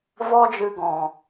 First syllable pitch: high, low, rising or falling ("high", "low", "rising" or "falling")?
high